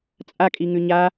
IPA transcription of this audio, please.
t͡sʼakʼiŋʉ ɲa

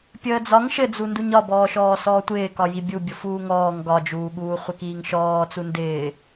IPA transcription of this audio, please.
pʲəːd͡zɒŋ ʃɘd͡zu nduɲɒbɔːʃɔː sɔːtʷɪːkɒ jibʲu bʲofuːŋɔːŋ ɡɒd͡ʒuːɠuː χʷɘkiːŋʃɔː t͡sundɪː

